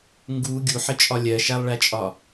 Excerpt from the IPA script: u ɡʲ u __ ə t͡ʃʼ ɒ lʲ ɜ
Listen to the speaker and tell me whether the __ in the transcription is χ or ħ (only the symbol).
ħ